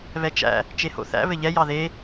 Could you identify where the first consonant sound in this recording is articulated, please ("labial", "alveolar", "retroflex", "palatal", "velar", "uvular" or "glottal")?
labial